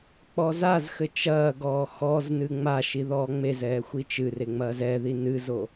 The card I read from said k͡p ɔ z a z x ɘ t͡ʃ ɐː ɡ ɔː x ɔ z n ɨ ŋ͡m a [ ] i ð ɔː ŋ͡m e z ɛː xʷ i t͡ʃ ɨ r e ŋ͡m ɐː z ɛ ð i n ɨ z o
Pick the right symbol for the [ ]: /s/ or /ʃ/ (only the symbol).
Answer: ʃ